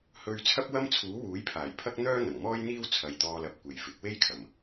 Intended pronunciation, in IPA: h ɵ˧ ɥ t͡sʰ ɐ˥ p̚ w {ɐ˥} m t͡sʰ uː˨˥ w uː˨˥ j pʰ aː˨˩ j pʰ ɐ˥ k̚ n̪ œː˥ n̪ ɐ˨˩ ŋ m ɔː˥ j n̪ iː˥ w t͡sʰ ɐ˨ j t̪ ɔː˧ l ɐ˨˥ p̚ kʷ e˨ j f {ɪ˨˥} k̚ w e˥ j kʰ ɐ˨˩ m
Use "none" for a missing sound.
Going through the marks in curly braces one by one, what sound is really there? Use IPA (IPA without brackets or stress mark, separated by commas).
ɐ˥, ɪ˨˥